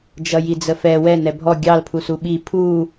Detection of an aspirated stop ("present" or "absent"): present